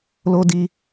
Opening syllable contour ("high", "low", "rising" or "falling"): high